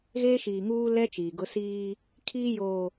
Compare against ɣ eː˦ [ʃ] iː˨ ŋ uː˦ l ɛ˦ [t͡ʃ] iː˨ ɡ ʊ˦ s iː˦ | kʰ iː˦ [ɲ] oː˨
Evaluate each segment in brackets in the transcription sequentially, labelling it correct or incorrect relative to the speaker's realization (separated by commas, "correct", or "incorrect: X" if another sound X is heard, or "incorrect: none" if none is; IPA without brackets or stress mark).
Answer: correct, correct, incorrect: j